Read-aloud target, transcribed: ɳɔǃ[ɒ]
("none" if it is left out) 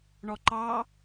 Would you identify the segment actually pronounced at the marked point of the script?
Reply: ɑ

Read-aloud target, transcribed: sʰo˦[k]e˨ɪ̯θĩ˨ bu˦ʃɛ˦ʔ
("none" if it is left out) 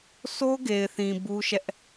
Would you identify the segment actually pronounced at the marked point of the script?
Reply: ɡ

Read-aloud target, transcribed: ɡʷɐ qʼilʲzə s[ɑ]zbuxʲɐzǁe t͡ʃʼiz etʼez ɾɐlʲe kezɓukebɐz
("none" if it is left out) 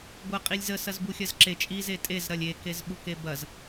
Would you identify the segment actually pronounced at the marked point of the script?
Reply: ɐ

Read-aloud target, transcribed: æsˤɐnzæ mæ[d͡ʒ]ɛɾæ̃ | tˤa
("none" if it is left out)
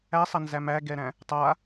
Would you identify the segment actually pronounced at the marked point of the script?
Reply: ɡ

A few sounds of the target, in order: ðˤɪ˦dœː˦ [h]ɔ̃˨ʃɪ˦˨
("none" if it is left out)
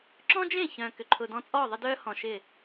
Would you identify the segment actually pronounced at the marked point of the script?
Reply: h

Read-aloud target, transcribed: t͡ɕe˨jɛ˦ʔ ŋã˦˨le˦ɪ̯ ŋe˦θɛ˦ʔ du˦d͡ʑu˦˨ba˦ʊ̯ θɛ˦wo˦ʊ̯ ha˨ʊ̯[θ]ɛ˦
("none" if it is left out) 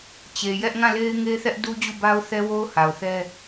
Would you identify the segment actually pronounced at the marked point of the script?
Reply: θ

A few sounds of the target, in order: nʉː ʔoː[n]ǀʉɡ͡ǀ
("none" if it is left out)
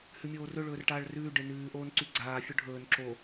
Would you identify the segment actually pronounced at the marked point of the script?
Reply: n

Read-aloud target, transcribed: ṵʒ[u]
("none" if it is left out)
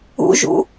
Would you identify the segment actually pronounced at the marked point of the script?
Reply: ṵ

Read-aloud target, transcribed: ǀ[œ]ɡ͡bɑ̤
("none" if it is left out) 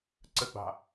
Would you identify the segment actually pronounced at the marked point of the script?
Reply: ə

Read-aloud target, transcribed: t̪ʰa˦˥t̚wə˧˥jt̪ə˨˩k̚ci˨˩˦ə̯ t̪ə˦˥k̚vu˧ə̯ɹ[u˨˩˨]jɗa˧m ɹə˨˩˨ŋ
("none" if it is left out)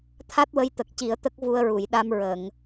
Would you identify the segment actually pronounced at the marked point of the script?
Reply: u˨˩˨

